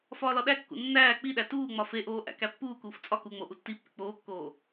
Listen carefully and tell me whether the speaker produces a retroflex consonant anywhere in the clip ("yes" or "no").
no